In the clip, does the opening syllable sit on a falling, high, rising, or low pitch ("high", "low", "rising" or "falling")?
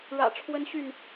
low